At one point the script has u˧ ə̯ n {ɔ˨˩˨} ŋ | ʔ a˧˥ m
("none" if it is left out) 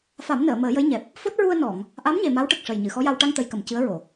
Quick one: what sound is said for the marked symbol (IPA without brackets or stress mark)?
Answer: ɔ˨˩˨